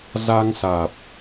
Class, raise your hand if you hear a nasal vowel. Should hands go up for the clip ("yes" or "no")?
no